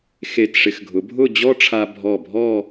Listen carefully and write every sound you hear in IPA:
xe˧˩tʂɪ˧x ɡʱʊ˩˧bʱʊ˥˧d͡ʑɔ˥ʈ͡ʂʰa˧ bʱɔ˧˩bʱɔ˥˧

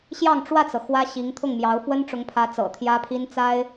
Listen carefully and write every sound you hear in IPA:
ɕjɑ˥˧ŋʈ͡ʂwä˥˩t͡sɤ˩ xwä˥ɕi˧˥ŋ t̪ʰʊ˥˩ŋmjɑ˧˥ʊ̯ fwə˥nʈ͡ʂʊ˧˥ŋpʰä˧˥ t͡sɤ̰˨˩t̪ʰjä˥pʰi˥n t͡sa˥ɪ̯

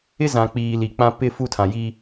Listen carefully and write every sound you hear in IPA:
ɪ˦zã˨k͡piː˨ li˨k͡pã˦ pɪ˦ fu˦tʰã˨ji˦

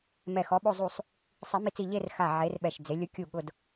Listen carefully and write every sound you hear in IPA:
mɛ˧˩xɔ˨˥ɓo˥˧ zˤu˧˩sˤ | sˤi˨˩˦mi˧˩t͡si˧˩ ʎe˥˧rxa˧˩ ʕe˨˥rɓɛ˧˩ʃd͡ze˨˥ lʲʊ˨˥kʲu˧˩ɠʊ˧˩d

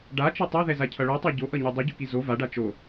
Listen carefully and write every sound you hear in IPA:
ɖat͡ʃʌ tˤaðɛzacʰʌ ɭotˤa ɟoʔʌɲo dˤuɟuki zo vaɖa t͡ʃo

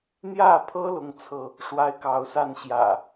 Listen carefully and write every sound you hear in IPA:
n̪jä˥˨pʰɤ˦ lʊ˦ŋt͡sʰɤ˥˨ | ʂwa˦ɪ̯kɑ˨˦ʊ̯sa˥˨nɕjä̰˨˩

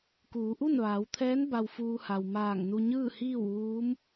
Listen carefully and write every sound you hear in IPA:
kuː˩˧ʔu˥˨nʋaː˩˧wt̪ʰɛː˧˥n ba˧wfuː˧ha˩w maː˧˩ŋ nu˧ ɲɯː˥˨hiː˥˨wʋuː˧˥m

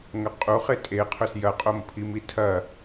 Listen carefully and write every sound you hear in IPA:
ŋɐqʼu χetʼe qʰɵsjɐqʼom pʰimitʰɐ

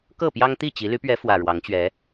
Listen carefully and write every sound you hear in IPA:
kɤ˥˨pjɑ˦ŋt̪i˥˨t͡ɕi˨˦ ly˨˦pɥɛ˨˦ fwä˨˩ɻwɑ˨˦ŋt͡ɕɥɛ˨˦

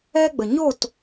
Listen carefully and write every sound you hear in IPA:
ɛ˦ɡ͡bə˨ ɲo˦˨t

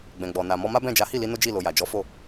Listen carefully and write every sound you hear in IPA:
ɡ͡bɛ̃˨ɡ͡bɔ˨ na˨ mɔ˧ma˦bɛ̃˦˨ d͡ʒa˨˦hi˦˨li˧ no˦d͡ʒi˦˨lo˨ ja˨d͡ʒɔ˨˦fo˦˨

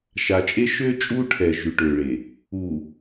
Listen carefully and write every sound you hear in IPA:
ʃa˨t͡ʃʼe˦ ʃø˦t͡ʃʼu˦ʈʰɛ˨ ʒy˨ʈø˨ɭe˨ | u˨

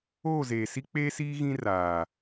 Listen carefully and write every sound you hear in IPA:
oː˦˨zeː˨si˦ k͡peː˦siː˦ ɣĩ˦raː˨

